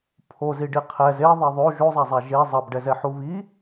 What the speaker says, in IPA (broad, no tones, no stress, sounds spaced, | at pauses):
pʰ o z i ɖ i qʰ ɛ z e ðˤ ɛ ðˤ o ʒ o zˤ a zˤ a ʒ e zˤ ʌ b ɖ ɛ z ɛ ħ u β i